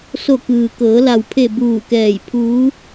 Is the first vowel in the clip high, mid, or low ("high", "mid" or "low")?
mid